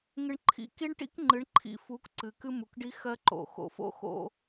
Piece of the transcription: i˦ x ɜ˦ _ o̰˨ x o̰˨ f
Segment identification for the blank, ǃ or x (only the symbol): ǃ